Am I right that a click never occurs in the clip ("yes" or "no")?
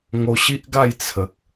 yes